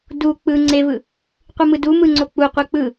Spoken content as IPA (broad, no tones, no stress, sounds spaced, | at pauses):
d u k͡p ɯ ŋ͡ǀ e v ɯ | qʷ ɯ m ɯ d u m ɯ ŋ͡ǀ o k͡p u qʷ ɯ k͡p ɯ